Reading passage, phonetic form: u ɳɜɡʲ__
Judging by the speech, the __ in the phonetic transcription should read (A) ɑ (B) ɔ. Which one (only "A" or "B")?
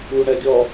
B